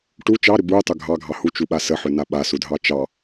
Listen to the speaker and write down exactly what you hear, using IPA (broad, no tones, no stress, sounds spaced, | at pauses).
ʈ u t͡ʃ ɑ ɾ ʏ b u tˤ ʏ ɡʱ ɑ ɡʱ ɑ h u t͡ʃ u ɓ a s ə ħ ʏ n a ɓ a s u dʱ ɑ t͡ʃ ɑ